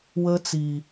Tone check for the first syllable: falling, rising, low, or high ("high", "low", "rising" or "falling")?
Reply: high